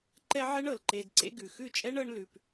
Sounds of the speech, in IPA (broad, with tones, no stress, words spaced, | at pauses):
ǃɛ˦ʕɛ˦ɳɤ˨l ǃe˧dǀḛ˦ɡʉ˨ xʉ˦˨t͡ʃʼɛ˦ɳ ɤ˦ɳlʉ˧p